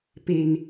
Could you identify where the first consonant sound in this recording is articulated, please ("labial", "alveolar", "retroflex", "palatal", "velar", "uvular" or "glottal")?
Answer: labial